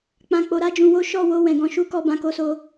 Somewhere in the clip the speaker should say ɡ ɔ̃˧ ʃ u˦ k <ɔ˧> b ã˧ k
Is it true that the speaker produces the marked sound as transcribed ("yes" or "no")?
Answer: yes